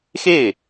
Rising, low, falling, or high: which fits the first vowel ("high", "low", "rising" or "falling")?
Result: falling